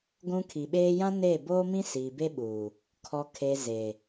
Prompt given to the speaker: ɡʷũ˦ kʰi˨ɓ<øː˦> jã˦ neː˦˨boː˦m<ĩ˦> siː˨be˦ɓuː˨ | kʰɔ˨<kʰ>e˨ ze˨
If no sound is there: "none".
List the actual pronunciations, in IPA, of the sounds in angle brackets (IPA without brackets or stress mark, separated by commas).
eː˦, ĩ˦, kʰ